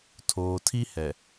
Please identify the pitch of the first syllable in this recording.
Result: low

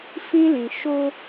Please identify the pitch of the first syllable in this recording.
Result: high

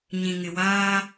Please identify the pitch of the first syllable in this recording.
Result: low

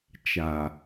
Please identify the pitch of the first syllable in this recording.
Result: low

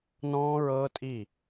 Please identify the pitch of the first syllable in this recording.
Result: high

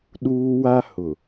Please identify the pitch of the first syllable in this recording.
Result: high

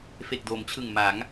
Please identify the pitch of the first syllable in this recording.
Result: low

